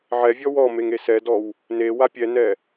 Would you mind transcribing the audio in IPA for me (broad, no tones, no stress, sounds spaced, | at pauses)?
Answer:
ʕ ɛ vʲ ɔ w ɔ m e ŋ e s ɛ d ɔ w | n e w a pʲ ɛ n ɛ